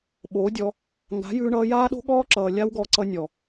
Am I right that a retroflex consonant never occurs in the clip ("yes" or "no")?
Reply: no